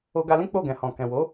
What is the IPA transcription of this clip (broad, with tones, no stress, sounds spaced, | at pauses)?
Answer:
o˧ ɡ a˧ l ĩ˦ k͡p o˦˨ ɡ ɛ̃˨ h ɔ̃˨ k ɛ̃˨ w o˨˦